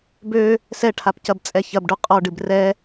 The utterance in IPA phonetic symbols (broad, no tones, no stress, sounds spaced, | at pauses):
b ø | s ɛ ʈʰ a p c ɐ b t͡sʼ ɛ ç ɐ b ɖ u qʼ ɔ ɖ ɨ b r ɛ